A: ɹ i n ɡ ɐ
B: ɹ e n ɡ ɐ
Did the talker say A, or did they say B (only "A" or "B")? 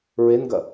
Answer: B